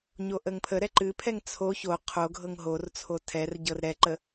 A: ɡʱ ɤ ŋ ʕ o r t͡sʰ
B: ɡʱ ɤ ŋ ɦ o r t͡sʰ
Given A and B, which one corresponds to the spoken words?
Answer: B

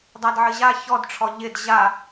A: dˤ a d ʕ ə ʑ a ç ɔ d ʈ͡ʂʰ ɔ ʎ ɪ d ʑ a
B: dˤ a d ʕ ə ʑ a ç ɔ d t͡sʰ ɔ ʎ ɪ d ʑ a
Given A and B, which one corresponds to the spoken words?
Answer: A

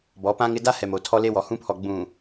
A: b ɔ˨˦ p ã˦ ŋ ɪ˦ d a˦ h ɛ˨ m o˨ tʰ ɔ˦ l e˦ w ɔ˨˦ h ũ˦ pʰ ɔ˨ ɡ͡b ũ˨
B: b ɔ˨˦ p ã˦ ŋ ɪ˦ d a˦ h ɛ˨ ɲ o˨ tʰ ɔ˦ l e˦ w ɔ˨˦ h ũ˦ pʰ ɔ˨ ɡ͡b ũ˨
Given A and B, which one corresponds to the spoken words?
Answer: A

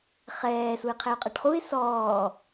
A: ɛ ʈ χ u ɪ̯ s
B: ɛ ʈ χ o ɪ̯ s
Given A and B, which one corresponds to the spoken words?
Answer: A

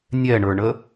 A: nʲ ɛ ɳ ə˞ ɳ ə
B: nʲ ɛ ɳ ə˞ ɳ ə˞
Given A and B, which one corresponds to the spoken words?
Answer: A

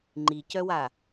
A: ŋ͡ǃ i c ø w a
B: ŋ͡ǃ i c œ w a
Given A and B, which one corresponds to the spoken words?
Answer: B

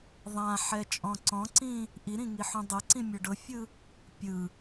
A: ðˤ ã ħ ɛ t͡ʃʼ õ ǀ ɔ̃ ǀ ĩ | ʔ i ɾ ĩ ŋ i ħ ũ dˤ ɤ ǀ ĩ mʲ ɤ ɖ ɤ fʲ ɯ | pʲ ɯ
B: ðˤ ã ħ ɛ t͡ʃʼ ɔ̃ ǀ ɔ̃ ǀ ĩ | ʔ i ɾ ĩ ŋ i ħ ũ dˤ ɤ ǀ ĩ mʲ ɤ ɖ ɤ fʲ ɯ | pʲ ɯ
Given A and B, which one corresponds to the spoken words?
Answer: B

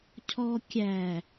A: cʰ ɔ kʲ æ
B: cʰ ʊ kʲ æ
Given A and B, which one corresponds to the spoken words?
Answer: A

